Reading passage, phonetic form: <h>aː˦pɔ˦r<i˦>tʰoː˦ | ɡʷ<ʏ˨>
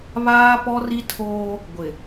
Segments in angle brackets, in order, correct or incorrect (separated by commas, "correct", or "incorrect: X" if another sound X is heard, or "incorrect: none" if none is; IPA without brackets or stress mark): incorrect: β, correct, incorrect: ɪ˨